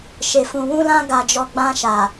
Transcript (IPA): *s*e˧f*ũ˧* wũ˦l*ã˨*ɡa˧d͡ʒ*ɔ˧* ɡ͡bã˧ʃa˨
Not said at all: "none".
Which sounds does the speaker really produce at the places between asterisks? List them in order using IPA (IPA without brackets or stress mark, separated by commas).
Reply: ʃ, ũ˧, ã˦, ɔ˧